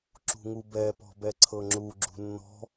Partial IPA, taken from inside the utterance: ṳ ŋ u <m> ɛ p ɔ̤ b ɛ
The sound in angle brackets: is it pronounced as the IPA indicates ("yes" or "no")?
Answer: no